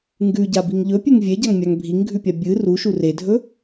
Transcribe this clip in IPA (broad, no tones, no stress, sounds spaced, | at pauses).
ŋ ɡ ʉ ɟ a b i ŋ ʎ ɵ pʲ ʉ ŋ vʲ e ɟ a ŋ mʲ a ŋ bʱ i ŋ ɡʱ ʉ pʲ a bʲ ɨ r u ʃ u r e dʱ ɵ